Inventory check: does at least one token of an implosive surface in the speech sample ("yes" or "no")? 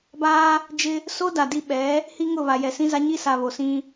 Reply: yes